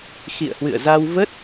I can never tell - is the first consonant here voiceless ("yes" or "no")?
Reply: yes